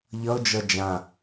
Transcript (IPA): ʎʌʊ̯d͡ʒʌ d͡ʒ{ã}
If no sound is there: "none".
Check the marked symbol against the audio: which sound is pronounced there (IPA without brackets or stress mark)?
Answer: ã